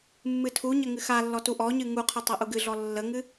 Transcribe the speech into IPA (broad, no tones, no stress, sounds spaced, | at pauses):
mː ɨ tʰ u ɲ ə ŋ ɨ x a lː ɔ t u ʔ ɔ ɲ ɨ ŋ u qʰ ɨ tˤ ɛ ʔ u ɡ ɨ ɮ ɔ lː ə ŋ ɨ